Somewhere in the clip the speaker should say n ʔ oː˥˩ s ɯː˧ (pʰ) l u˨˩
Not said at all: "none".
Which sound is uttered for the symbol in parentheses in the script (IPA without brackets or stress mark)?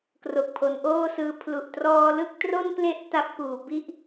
pʰ